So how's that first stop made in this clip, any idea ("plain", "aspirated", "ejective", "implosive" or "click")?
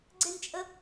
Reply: click